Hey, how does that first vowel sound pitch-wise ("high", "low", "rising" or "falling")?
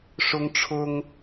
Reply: high